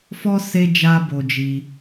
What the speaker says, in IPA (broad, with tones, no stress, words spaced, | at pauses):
fɔ˦ se˦ d͡ʒa˦bo˧d͡ʒi˧